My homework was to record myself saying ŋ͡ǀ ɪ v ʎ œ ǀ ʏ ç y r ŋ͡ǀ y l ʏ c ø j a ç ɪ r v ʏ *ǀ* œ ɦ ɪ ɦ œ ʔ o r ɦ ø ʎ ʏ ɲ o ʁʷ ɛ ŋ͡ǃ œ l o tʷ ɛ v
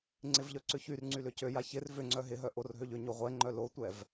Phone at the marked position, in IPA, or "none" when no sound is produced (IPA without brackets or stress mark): ŋ͡ǀ